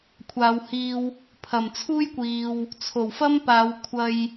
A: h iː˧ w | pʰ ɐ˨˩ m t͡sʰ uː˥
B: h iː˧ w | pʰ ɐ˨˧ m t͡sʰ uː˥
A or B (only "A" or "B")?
A